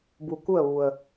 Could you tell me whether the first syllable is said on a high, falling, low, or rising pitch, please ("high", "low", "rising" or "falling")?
low